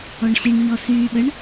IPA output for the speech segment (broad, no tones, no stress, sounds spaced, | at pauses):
ɔ ɳ ɕ i ɳ ɲ ɔ s yː ɓ ə ɳ